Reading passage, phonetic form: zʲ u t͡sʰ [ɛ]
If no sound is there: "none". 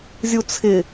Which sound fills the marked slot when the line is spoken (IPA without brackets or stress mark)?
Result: ɪ